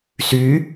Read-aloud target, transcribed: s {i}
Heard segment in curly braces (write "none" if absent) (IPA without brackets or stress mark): y